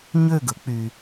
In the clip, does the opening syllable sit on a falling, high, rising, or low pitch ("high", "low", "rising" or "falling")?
falling